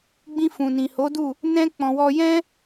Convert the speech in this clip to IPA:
ɡ͡b ĩ˧ f ũ˨ n ĩ˨ h o˨˦ d u˦˨ | n ɛ̃˦ k͡p ɔ̃˧ w ɔ˦ j ɛ̃˦

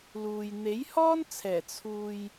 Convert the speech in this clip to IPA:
l uː˨ j n̪ e˨˥ j h ɔː˥ n t͡sʰ ɛː˨˩ t͡sʰ uː˨ j

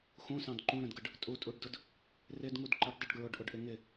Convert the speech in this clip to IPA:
x ũ s ɑ̃ d ǃ ũ ɾ ə̃ d ɡ ə ɖ | tʼ u tʼ u ɖ d ʊ d | r ɪ d ŋ u d ǃ ə ɖ dˤ ɪ ɖ ɡ ɹ ʊ ɖ ʔ ʊ ɖ ʔ ɪ ŋ ɪ

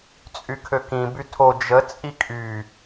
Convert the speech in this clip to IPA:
t͡sʼ y kʰ ø k ĩ b y tʰ o d͡ʒ ə t͡sʼ i kʼ y

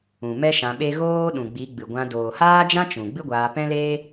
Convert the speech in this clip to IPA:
ũ˨ m ɛ˦ ʃ ã˧ ɓ e˦ ɣ oː˦ ɗ ũ˨ ɡ͡b i˨˦ ɡ͡b ɨ˨ ɡʷ ã˧ d oː˨ h aː˦ d͡ʒ ã˦ t͡ʃ ũ˨ ɡ͡b ɨ˦ ɡʷ aː˧ p ɛ̃˦ l eː˦

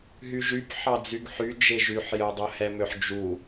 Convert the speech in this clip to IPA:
ɦ y ʒ y p ħ ɑ d͡z y ɡ ħ y d͡ʒ e ʒ y ħ j œ dˤ œ h ɛ m ø ħ d͡ʒ u

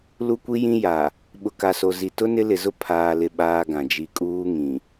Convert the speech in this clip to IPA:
l u˦ kʷ i˦ j ĩ˦ j a˨ | ɓ ʊ˨ k a˨ s o˨ z i˨ t ʊ˦ n ɪ˦ l ɪ˨ z ʊ˦ pʰ aː˨ l ɪ˨ ɓ aː˦ ɡ ã˨ d͡ʒ i˨ kʼ uː˦ ŋ ĩ˨

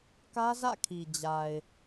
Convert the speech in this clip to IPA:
k ä˦ z ä̰˦˨ kʰ i˨ d͡ʑ a˨ ɪ̯

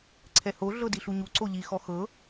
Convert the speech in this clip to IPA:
ǀʰ ɛ h o ɮ ɤ d i ɬ u ɲ u ǀ o ʎ i x ɔ x ɤ

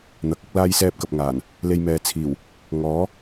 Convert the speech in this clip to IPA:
n̪ ɐ˨˥ k̚ ɐ˥ k̚ l aː˥ j s ɛː˥ p̚ k ɐ˨ p̚ ŋ aː˨˩ n | l e˧ j m ɛː˨ t͡sʰ iː˨˩ w | ŋ ɔː˨˥

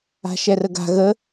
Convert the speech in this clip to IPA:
a̤ ʃ ɛ r ə ɡ a̤ ɣ ə

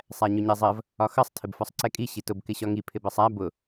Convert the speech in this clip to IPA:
sˤ æ ɲ ʊ ɲ ɛ zˤ ɜ v | ɒ x ʌ sˤ tʰ ɪ b f ɒ sˤ ǀ ɛ kʼ i ɕ i t ʊ b k ɪ ɕ ɒ ŋ i pʰ ɪ b ɜ sˤ æ b ʊ

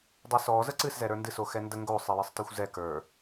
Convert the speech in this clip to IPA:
dˤ ɵ s ɔ z ə ǀ ɨ s z ɛ ɾ ə˞ n d ɨ s o x ɛ n d ə ŋ ɡ o sˤ ɨ j ɨ sˤ t ə˞ xʷ z ɛ k ə˞

